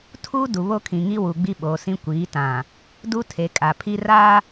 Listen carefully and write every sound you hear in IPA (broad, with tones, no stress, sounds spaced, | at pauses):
tʰ uː˦ d u˨ β o˦ kʰ ĩ˨ ŋ i˦ w u˨ ɡ͡b i˦ ɓ oː˨ s ĩ˦ kʷ iː˨˦ t ã˨ | d u˦ tʰ e˨ kʼ a˨ pʰ i˦ r a˦